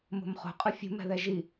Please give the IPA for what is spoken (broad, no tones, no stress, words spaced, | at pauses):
mo̤mχo̤qʼɯ fʲṳmɛ̤ðɛ ʒi